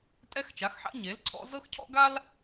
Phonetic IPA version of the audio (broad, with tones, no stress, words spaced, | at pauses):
tʼɛ˥xt͡ʃa˨˥xħa̰˥ ɲe˨˥lǀʰɔ̰˥ zɤ˥xcʰɔ̰˥ɡa˥l